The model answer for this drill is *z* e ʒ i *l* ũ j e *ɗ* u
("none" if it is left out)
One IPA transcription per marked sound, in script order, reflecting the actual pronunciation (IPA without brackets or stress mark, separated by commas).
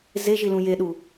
z, l, ɗ